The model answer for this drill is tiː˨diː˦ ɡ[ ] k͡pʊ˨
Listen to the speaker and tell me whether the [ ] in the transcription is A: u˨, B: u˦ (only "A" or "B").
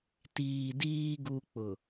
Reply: B